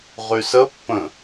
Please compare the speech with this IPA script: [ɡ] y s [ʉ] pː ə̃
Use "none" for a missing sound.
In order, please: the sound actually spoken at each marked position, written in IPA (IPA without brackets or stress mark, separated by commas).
ʁ, ə